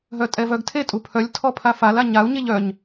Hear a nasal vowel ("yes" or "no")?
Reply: no